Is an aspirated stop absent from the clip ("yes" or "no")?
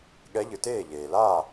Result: yes